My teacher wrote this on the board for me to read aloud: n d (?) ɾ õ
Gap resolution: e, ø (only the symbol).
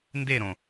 e